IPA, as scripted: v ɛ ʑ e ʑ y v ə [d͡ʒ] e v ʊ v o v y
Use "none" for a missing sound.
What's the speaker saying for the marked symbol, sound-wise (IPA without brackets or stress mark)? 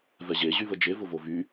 d͡ʒ